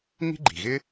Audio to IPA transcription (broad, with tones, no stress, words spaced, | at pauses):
ŋi̤˥ɡ͡ǃi̤˩ɣɪ˥